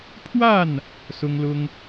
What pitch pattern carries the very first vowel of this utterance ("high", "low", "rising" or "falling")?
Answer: falling